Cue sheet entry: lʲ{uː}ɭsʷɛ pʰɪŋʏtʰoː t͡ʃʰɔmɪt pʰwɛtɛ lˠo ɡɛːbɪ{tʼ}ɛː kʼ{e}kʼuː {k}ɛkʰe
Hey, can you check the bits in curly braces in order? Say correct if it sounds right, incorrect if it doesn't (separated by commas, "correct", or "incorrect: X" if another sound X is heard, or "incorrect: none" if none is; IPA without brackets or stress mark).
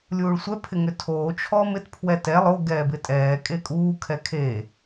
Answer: correct, correct, correct, incorrect: kʰ